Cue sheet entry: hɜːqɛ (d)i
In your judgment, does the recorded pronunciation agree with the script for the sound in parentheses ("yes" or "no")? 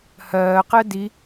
yes